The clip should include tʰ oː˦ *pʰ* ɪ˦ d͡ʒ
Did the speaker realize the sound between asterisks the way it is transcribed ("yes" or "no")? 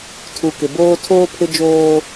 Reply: yes